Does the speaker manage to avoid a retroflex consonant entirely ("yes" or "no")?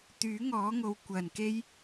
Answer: yes